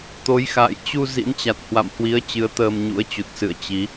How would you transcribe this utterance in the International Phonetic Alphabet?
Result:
t̪ o˨˦ j x a̰ː˧˨ j t͡ɕ u˧ z ḭ˧˥ n t͡ɕ a˨˩ t̚ h w a̰˧˨ m h w i˨˦ ə̯ t͡ɕ ɨ˨˦ ə̯ t̪ əː˧ m ɲ ṵ˧˥ ə̯ t͡ɕ u˨˩ t̚ s ɨ̰˧˨ ə̯ t͡ɕ i˨˦

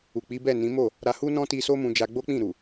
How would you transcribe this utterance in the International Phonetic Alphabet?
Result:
u˨ k͡p i˨˦ b ɛ˦˨ n ĩ˨˦ m o˦˨ | ɾ a˧ h u˦ n ɔ̃˦ t i˧ s o˦ m ũ˧ d͡ʒ a˧ ɡ͡b o˦ k͡p ĩ˦˨ ɾ u˨

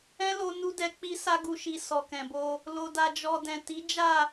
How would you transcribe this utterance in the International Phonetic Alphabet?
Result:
ɛ̃˦ l o˧ n u˧ d ɛ˨ k͡p i˧ s a˧ ɡ u˨ ʃ i˨ s ɔ˨ k ɛ̃˨ b o˧ | l o˨ d a˨ d͡ʒ ɔ˨ d ɛ̃˨ t i˨˦ d͡ʒ a˦˨

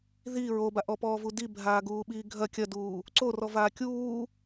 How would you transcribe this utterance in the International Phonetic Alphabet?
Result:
ð i ɹ o b a ʔ ɔ p ɔː v u d i bʱ aː ɡ uː ɓ iː ɡʱ ɐ kʲ ɐ d uː | ǀ o r ɔ v aː kʲ uː

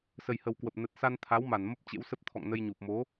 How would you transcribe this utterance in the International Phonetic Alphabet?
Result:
s ə˨˩ j h ə˨˩ w k w ə˨˩ p̚ n ə˨˩ t̚ s a˧ n t̪ʰ a˨˦ w m a˧˩ n m ə˦˥ p̚ t͡ɕ ḛ˧˥ w s ə˦˥ p̚ t̪ʰ ɔ̰˧˨ ŋ n ə˧ j ɲ u˨˩ p̚ m o˨˦

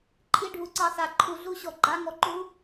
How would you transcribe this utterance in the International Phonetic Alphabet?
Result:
ǃʰ i˧˥ ɖʱ u˧˩ ǀ ɑ˧ s a˧˩ ǃʰ u˧˩˧ ɮ u˧˥ ɕ ɔ˧˩˧ ɡ͡ǃ a˧˥ ŋ ɔ˧ ǃ u˧˥

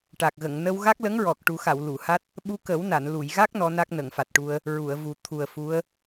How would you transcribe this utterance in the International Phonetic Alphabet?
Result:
ʈ a˨˩ k̚ ɣ ə˨˩˨ ŋ n ə˧ w ɣ a˦˥ k̚ l ə˧˥ ŋ ɹ ɔ˨˩ k̚ ʈ u˨˩˦ x a˨˩˨ w l u˨˩˨ h a˦˥ t̚ | ɓ u˧ k ə˨˩˦ w n a˨˩˨ n l u˨˩˨ j ɣ a˦˥ k̚ n ɔ˧˥ n a˦˥ k̚ n ə˨˩˨ ŋ f a˨˩ t̚ ʈ u˧ ə̯ | ɹ u˨˩˨ ə̯ v u˨˩˦ t̪ʰ u˨˩ ə̯ f u˧˥ ə̯

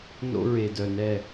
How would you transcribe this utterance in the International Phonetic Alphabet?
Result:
n o̰˦ ɹ e˨ d œ˨ n ɛ˦˨

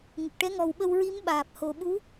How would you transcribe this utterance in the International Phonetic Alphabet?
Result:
ŋ ə˨˩ k̚ ʈ ɛ˧˥ ŋ ɔ˨˩ w ɓ ə˧ w ɹ i˧˥ m ɓ aː˨˩ p̚ h o˨˩ ɓ u˧˥

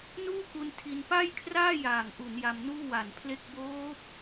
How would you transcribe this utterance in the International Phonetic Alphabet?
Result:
n uː˥˩ k u˧ n tʰ i˧ n p a˥˩ j kʰ r aː˥˩ j aː˨˩ ŋ ʔ u˩˦ n j a˧ m n uː˥˩ w a˨˩ n pʰ l e˥˩ k̚ b oː˦˥ p̚

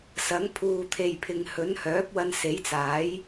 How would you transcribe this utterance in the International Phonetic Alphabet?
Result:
s ɐ˨˥ ŋ pʰ uː˨ t̪ʰ e˨ j pʰ ɪ˨ ŋ h ɵ˨˥ n h œː˨˥ p̚ w ɐ˧ n s e˨˥ j t͡s aː˨˥ j

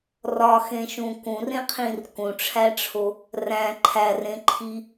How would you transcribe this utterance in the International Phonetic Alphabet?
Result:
r ɒ x ẽ ʃ ũ k ũ r ẽ qʰ ĩ r k ũ ʈ͡ʂʰ æ ʈ͡ʂʰ o | r æ̃ ǃʰ æ r ẽ ǃʰ i

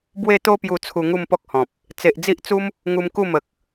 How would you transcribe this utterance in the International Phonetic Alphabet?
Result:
b w e˥˧ t̪ o˦ p j u˧ t͡sʰ u˧ ŋ u˥˧ m p ɔ˦ k̚ h ɔ̃˨ p̚ | t͡s e˨ ʔ d͡z i˦ ʔ t͡s u˦ m | ŋ u˧ m k u˥˧ m ə˨ k̚

